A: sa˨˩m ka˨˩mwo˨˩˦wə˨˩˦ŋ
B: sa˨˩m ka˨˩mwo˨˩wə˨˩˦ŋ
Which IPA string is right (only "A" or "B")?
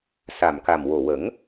B